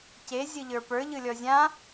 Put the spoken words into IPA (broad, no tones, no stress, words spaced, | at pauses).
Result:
ce zʲɯʎə˞pə˞ ʎɯlʲɔzʲã